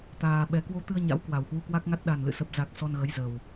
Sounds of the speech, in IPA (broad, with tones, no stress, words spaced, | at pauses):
t̪aː˧ɓɛ˧ kwo˧t̪ɨ˧ə̯ɲa̰˧˥w kwa˨˩whwu˧kwa˦˥k̚ŋa˦˥t̚ ɗa˨˩n lɨ̰˧˨ sə˨˩p̚za˨˩k̚ sɔ˧nɣə˨˦jzə˨˩w